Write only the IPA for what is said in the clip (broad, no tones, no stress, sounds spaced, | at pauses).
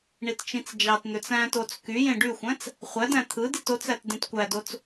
ɳ i t t͡ʃ ĩ t͡s d͡ʒ ɑ t n̪ ø t͡s æ̃ t o t͡s k y j ẽ ɖ y xʷ æ̃ t͡s | χʷ æ d æ̃ t̪ʰ ɯ d i t o t͡s æ t d ẽ t kʷ æ d o t͡s